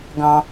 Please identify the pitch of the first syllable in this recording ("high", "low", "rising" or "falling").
high